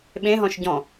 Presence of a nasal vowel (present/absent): present